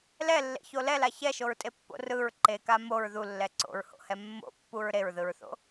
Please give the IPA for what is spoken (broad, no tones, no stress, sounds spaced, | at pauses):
l ɛ lː ḛ ç o l ɛ l a ç ɛ ʃ o ɹ tʼ e pː o̰ r ɯ ɹ ǃ e k a m o ɹ ð u lː ɛ ǀ o̰ ɹ h o̰ h ɛ mː o̰ pː u ɹ ɾ e ɹ ð ɯ ɹ θ o̰